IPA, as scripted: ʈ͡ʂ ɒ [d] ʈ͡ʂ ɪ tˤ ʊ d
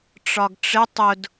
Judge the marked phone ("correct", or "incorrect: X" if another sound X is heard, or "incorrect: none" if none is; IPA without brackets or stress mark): incorrect: ɡ